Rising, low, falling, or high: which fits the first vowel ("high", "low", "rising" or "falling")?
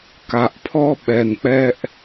low